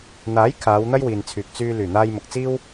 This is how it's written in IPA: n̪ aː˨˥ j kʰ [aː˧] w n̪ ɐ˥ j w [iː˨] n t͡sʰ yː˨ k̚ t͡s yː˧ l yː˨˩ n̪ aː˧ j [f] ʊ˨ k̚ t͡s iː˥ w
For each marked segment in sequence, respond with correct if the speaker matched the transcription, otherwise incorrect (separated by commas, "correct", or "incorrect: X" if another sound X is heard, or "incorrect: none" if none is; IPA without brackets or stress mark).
incorrect: aː˨˧, correct, incorrect: m